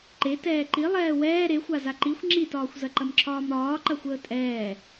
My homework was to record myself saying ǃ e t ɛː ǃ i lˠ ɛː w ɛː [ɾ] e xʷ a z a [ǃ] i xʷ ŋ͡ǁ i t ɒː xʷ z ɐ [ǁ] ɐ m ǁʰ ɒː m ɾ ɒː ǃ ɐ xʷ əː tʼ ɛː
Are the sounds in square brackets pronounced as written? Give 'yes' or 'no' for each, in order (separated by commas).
yes, yes, no